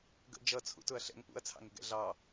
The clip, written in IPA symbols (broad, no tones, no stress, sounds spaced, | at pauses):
ɡ ə̰ d͡ʒ ʌ t͡sʰ ṵ t ʊ ɐ̯ ɬ ɛ̰ ŋ p ṵ ɐ̯ t͡sʰ ɑ̰ ŋ ɪ ɡ ɛ̰ ɮ ɑ